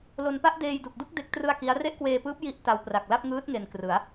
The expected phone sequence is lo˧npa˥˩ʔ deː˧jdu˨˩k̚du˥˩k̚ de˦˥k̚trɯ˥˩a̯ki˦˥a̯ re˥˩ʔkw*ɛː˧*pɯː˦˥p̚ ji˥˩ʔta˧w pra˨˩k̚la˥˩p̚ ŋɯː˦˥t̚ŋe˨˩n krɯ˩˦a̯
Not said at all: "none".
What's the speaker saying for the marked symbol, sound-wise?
eː˧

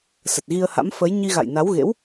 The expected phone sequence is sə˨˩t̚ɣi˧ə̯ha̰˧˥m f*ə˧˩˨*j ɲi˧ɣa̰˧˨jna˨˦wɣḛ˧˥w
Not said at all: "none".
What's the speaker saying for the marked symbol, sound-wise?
ə˨˦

